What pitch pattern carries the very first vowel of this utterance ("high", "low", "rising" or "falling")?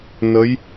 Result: rising